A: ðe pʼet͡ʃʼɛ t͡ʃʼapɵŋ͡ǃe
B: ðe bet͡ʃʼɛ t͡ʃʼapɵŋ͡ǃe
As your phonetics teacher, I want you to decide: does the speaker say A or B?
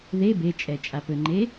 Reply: B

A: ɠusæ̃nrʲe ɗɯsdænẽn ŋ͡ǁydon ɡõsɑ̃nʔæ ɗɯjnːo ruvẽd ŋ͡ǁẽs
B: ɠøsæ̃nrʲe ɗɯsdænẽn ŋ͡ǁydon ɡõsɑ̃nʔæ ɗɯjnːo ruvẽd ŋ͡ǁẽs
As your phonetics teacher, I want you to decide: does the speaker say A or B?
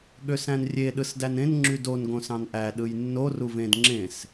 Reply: B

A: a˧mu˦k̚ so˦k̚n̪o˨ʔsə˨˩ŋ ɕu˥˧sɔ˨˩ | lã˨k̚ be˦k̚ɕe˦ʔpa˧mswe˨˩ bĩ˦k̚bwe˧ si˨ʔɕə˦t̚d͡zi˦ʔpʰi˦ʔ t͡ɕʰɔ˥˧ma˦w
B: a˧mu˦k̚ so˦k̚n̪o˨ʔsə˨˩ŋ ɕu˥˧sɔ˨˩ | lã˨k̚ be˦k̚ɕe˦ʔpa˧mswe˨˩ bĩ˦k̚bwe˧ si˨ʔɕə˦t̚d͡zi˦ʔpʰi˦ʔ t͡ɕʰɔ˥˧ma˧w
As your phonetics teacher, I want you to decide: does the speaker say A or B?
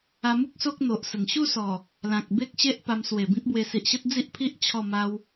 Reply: A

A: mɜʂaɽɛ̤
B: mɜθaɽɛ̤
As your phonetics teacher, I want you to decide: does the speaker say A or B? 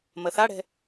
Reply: B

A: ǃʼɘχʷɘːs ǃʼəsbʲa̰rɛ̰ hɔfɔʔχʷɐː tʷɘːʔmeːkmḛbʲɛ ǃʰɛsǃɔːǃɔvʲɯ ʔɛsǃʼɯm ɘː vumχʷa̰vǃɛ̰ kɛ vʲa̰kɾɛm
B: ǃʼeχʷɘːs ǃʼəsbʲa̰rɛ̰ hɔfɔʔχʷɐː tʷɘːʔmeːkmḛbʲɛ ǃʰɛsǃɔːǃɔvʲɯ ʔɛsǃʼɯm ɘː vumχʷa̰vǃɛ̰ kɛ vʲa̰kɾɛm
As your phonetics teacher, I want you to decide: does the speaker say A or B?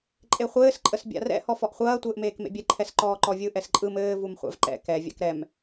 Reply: B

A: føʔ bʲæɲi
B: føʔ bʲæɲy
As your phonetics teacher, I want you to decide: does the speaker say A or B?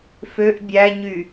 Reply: B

